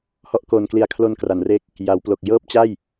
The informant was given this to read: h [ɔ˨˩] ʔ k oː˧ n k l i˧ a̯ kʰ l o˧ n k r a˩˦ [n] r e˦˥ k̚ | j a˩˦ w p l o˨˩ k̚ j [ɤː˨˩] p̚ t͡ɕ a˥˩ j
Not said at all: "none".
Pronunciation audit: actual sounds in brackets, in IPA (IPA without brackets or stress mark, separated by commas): ɔ˥˩, n, ɤː˥˩